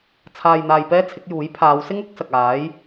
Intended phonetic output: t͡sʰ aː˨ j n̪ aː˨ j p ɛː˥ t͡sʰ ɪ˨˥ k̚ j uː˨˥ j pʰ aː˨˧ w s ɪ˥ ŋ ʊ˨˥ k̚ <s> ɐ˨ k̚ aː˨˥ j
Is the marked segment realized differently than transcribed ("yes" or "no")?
no